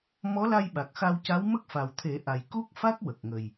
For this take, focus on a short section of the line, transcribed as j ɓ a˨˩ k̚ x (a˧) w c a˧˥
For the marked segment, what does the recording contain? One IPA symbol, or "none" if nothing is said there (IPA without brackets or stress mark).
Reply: a˧